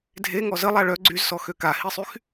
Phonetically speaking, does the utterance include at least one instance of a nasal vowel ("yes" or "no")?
no